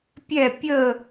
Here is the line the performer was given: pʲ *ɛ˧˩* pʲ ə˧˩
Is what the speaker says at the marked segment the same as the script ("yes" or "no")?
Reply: yes